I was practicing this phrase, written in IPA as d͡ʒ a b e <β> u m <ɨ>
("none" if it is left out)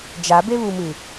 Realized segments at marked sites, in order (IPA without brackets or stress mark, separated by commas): β, ɨ